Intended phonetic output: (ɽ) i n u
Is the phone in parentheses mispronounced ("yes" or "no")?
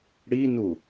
no